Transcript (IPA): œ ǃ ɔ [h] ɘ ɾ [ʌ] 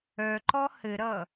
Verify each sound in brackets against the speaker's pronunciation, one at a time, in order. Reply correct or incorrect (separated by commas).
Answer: correct, correct